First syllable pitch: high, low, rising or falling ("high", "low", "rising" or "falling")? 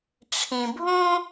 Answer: low